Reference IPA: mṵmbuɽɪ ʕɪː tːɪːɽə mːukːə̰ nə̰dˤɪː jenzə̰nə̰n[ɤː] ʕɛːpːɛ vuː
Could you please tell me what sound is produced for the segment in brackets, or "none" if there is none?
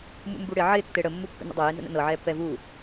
ɤː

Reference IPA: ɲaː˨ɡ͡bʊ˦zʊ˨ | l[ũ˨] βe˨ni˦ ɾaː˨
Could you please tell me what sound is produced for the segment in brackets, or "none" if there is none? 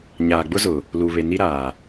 u˨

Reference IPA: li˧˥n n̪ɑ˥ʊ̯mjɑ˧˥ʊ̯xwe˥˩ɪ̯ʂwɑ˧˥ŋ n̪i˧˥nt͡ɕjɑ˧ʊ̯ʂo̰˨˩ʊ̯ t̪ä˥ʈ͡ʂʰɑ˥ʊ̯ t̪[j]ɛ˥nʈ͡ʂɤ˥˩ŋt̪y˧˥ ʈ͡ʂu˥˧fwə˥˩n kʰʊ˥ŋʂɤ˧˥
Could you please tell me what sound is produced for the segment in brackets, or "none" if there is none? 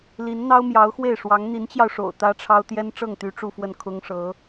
j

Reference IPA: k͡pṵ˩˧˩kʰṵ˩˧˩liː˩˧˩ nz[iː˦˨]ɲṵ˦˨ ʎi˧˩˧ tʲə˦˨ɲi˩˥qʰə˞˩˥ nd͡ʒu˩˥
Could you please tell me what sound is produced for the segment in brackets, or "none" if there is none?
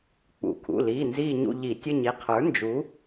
iː˦˨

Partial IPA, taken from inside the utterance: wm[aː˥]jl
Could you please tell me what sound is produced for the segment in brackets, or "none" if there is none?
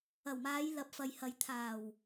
aː˨˧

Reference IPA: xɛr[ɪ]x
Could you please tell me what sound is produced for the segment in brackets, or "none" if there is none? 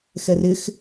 ɪ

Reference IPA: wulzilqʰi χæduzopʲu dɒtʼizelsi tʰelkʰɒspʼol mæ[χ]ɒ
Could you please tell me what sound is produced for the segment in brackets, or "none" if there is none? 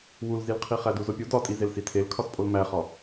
χ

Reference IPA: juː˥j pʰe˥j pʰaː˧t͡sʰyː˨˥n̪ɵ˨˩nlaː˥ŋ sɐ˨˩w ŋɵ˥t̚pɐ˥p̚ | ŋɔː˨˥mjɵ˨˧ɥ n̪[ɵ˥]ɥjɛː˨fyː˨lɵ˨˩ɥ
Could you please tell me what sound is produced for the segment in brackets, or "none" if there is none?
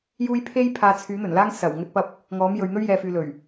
ɵ˥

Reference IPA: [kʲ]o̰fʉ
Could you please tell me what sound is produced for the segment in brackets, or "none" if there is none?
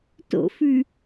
t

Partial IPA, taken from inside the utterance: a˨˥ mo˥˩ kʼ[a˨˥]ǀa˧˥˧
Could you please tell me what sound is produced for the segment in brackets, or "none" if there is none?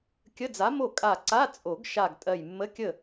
a˧˩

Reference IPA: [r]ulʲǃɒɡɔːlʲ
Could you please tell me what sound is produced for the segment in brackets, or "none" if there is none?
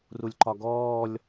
r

